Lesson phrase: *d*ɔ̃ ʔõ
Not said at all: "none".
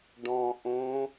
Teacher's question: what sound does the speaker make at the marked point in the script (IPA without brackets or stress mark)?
ɖ